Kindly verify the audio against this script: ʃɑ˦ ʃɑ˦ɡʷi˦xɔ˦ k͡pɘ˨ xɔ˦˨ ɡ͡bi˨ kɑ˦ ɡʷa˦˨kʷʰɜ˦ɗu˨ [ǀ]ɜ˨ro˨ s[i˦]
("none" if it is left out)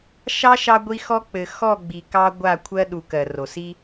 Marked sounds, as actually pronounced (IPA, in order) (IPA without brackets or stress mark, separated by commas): k, i˦